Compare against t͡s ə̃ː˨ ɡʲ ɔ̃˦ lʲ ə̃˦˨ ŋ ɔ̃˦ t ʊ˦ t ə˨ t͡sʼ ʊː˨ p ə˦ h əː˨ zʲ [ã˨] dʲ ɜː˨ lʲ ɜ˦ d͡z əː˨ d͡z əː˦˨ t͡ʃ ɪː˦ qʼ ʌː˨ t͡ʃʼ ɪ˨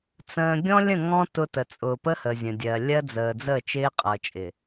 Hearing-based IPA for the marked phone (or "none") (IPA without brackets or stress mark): ə̃˨